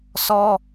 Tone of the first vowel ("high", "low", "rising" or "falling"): high